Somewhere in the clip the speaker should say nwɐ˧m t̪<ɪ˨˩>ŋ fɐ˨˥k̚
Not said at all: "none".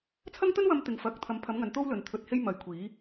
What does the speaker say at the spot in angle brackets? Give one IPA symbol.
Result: ɪ˨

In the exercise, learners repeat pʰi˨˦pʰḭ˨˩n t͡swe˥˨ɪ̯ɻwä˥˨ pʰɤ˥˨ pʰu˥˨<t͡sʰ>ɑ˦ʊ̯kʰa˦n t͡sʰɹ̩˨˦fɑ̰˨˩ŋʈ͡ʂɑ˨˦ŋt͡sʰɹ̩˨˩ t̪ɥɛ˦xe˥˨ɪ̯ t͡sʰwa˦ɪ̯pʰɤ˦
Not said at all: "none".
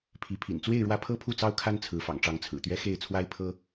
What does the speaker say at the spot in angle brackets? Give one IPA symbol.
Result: t͡s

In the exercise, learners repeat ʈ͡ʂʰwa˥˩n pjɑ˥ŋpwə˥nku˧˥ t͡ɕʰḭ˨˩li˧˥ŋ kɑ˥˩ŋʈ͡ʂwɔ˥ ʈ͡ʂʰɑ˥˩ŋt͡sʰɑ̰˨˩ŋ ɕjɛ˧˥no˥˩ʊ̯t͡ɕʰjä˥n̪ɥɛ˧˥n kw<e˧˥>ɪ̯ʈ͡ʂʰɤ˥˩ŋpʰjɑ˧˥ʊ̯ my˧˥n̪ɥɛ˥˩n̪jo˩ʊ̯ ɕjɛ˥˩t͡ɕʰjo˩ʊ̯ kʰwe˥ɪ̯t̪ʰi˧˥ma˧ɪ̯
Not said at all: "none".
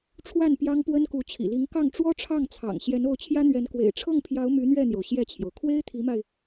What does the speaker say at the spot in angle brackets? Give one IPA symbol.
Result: ḛ˨˩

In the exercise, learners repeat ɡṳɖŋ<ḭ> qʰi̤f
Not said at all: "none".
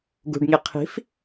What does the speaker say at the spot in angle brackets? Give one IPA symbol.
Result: i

